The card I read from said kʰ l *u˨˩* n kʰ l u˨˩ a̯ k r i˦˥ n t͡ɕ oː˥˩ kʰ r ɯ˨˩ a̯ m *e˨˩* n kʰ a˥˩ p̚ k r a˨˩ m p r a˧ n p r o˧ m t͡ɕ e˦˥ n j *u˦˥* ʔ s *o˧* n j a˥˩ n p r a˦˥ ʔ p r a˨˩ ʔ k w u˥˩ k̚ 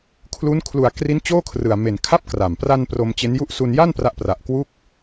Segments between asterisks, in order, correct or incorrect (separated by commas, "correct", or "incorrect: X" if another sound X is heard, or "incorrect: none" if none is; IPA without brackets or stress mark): incorrect: u˦˥, correct, incorrect: u˥˩, incorrect: u˧